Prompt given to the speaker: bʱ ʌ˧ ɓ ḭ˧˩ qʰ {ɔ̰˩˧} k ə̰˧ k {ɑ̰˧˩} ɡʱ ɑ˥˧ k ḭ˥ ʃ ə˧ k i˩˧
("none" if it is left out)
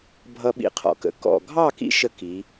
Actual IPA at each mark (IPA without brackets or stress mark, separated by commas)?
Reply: ɔ̰˧, ɔ̰˧˩